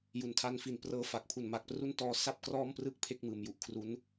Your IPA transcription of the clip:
j u˩˦ n tʰ a˧ n f i˩˦ n p r ɤː˧ f a˨˩ k̚ pʰ u˨˩ n m a˨˩ k̚ p r u˥˩ n t ɔː˦˥ s a˥˩ p̚ k r ɔː˥˩ m p r ɯ˥˩ k̚ pʰ e˥˩ k̚ m ɯː˩˦ m j u˨˩ ʔ kʰ r u˦˥ n

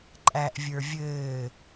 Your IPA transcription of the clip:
ǃʼ æ ʔ vʲ ə˞ vʲ ɘː

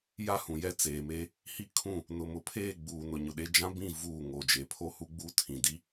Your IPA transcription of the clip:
j a˦ h ũ˨ j ɛ˦ t͡s eː˨ m e˦ | h i˦ kʰ ũ˦˨ | n ʊ˨ m ʊ˨ pʰ eː˦˨ ɡ͡b uː˨ n ʊ˨ ɲ ʊ˨ ɗ e˦ d͡ʒ ã˦ b ĩ˦˨ v uː˦˨ ŋ o˨ d͡ʒ e˨˦ pʰ o˦ h u˦ ɡ͡b uː˦ tʰ ĩ˨ d i˦

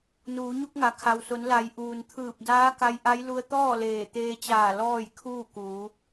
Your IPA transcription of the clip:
n uː˩˧ ɲ u˧ k̚ ŋ a˩ kʰ a˩ w s o˩˧ n l a˩˧ j ʔ uː˩ n t̪ʰ ɯː˧˩ p̚ d aː˧˥ k a˧ j ʔ a˧˥ j l u˧ ə̯ t̪ ɔː˥˨ l eː˧˩ t̪ eː˧ t͡ɕ aː˧˩ l ɔː˥˨ j kʰ uː˥˨ k uː˩˧

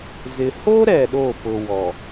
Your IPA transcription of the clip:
z ɪ˨ h o˦ ɾ ɛ˨ ɗ o˦˨ f ʊ˨ w ɔ˨

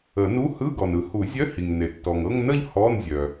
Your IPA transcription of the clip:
ə˨˩˦ n u˧˥˧ h ɯ˧˥˧ ɡ ɔ˩ n ɯ˨˩˦ h u˨˩˦ zʲ œ˧˥˧ h i˩ ŋ n e˩ tː ɔ˩ ŋ ɤ˥˧ ŋ n ə˥˧ ʎ h ɔ˧˥˧ n zʲ œ˩

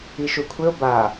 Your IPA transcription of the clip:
i ʃ u kʷʰ ɪ o̯ b a

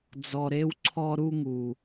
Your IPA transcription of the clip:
d͡z ɔ˨ ɾ e˦ w ǀʰ ɔ˦ ɾ u˦ ŋ u˨

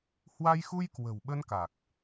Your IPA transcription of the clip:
h w a˧ j x u˧ j k w ə̤˨˩ w ɓ ə˧ n k a˨˩ k̚

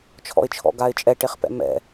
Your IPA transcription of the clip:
t͡ʃʰ ɔ̰ ɪ̯ t͡ʃʰ ɔ̰ ɡ a ɪ̯ t͡ʃʼ ɛ ʈ e χ p ɛ̰ m ɛ̰

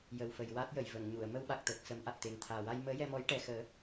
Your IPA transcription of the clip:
j ə˨˩ w f ə˨˩ j w a˦˥ t̚ j ə˨˩˨ j v ə˨˩˨ ŋ ɲ u˨˩˨ ə̯ m ə˧ w ɓ a˨˩ k̚ t̪ əː˨˩ k̚ s ə˨˩˦ m ʔ a˨˩ t̚ t̪ e˨˩ ŋ t̪ʰ aː˨˩ w a˧ j m əː˧˥ j ɛ˧ m ɔ˧˥ j ʈ ɛ˨˩ x əː˨˩˦

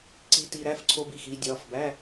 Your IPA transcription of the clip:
ǀ i˧ t i˧ ɾ æ˩˧˩ f ǀʰ o˧ b i˩˧˩ x i˧ dʲ ɒ˩˧˩ f b æ˧˥˧

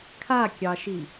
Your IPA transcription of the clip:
kʰ a kʲ ɑ ʃ i

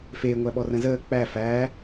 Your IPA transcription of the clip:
f eː ŋʷ æ ɓ ɔ r ə̃ z əː k͡p æ f æ

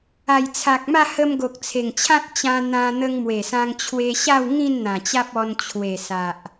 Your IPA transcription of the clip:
a˨˩ j t͡sʰ a˨ k̚ m a˥˧ h ə˧ m ɡ o˨ k̚ t͡sʰ e˨˩ ŋ t͡ɕʰ ã˦ t̚ t͡ɕ ã˧ n̪ ã˧ n̪ ə˧ ŋ m w e˨˩ s ã˧ ŋ t͡ɕʰ w e˧ ɕ a˥˧ w ŋ ĩ˥˧ n n̪ ã˨˩ t͡ɕ a˦ p̚ ɔ˧ n t͡ɕʰ w e˨˩ s a˨ ʔ

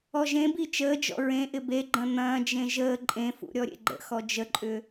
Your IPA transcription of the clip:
ɔ ʒ ẽ b i t͡ʃ əː d͡ʒ ɔ̰ ɹ ẽ ʔ ɪ b e ɡ͡ǃ ɐ̃ n̪ ɐ̃ː d͡ʒ ẽ ʒ əː ǃʼ ẽ f ṵ ɾʲ ɔ ɾʲ ḛ ɡ͡ǃ ə̰ x ɔ d͡ʒ ə ǃʼ ʏ

